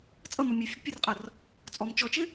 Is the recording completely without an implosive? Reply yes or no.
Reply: yes